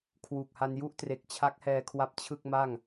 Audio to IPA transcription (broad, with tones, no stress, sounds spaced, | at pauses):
kʰ w uː˨˩ k̚ h a˧ n j u˥˩ ʔ t r e˨˩ k̚ t͡ɕʰ a˦˥ k̚ h ɛː˧ kʰ w a˦˥ p̚ t͡ɕʰ ɯ˥˩ k̚ m a˥˩ ŋ